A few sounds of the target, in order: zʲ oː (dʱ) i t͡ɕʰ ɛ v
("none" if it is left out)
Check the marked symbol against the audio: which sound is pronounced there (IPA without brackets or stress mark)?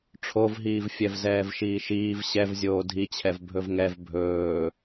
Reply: dʱ